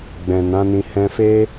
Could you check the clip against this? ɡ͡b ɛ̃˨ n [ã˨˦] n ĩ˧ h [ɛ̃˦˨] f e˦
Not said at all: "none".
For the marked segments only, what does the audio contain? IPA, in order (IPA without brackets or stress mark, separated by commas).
ã˨˦, ɛ̃˧